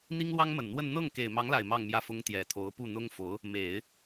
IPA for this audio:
n̪ i˥ ŋ l w ɑ˥ ŋ m ə˨˩ n n̪ w ə˥˧ n n̪ ɤ˥˩ ŋ k e˨˩ ɪ̯ m ɑ˧˥ ŋ l a˨˩ ɪ̯ m ɑ˥˧ ŋ m j ä˥˩ f ʊ˥ ŋ t̪ j ɛ˨˩ t̪ʰ o˧˥ ʊ̯ p u˥˩ n̪ ʊ˥ ŋ f o˧˥ ʊ̯ | m e˨˩˦ ɪ̯

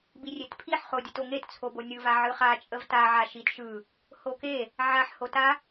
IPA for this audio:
b i rʲ e t pʰ i ħ χ o dʲ ɯ t o ŋ e t t͡sʰ o b o nʲ ɯ v a ʕ ɯ χ a t͡ʃʼ ə v t a ʕ a ʃ i t ʃ ɯ | h o k e | ʕ a ħ h o t a

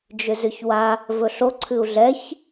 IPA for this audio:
d͡ʒ ʏ z ʏ ç w a | v ɵ ɬ o ǀʰ ɨ u̯ ɮ ɛ ç

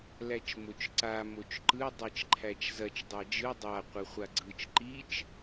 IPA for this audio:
l æ t͡ʃ m o t͡ʃ ǀ a m o t͡ʃ ǃ ɯ dˤ i t͡ʃ ǃʰ æ t͡ʃ z ɐ t͡ʃ dˤ æ d͡ʒ ɯ dˤ a qʷ ɯ χʷ a ɡ͡ǀ ɯ t͡ʃ ǃ i t͡ʃ

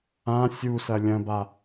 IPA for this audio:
ã sʲ u s ɐ lʲ ɐ̃ b a

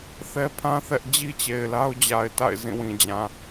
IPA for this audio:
θ ɛ˦ pʰ ã˦ θ ɛ˦ ʔ d͡ʑ i˦ t͡ɕ e˨ ɪ̯ l a˦ ʊ̯ d͡ʑ a˨ ɪ̯ t a̰˦˨ ɪ̯ z ĩ˦˨ w ĩ˨ d͡ʑ ã˨

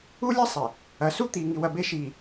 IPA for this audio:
u˦ lʲ e˦ sˤ e˨ | ɐ˨˦ s u˦ t̪ i˨ ŋ i˨ w ɐ˨ b e˦ ʃ iː˨

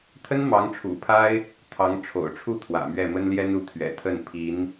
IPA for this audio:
t̪ʰ ə˥ n m ɑ˧˥ ŋ ʈ͡ʂʰ ṵ˨˩ pʰ a˥ ɪ̯ | t̪ʰ ɑ˧˥ ŋ ʈ͡ʂʰ o̰˨˩ ʊ̯ ʈ͡ʂʰ u˥˩ t̪ʰ w ä̰˨˩ m ɥ ɛ˥˩ m ə˥ n l j ɛ˥ n u˧˥ t̪ʰ ɥ ɛ̰˨˩ t̪ʰ ə˥˩ n pʰ i˧˥ n

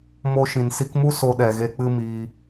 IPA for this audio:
m o˧ ʃ ĩ˨ n s i˧ k m u˦ s o˧ ɗ ɛ˨ ɣ e˧ k͡p ɨ˦ m iː˧

